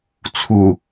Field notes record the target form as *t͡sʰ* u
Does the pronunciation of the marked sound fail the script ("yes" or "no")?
no